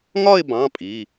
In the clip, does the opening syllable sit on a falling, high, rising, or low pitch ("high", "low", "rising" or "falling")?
falling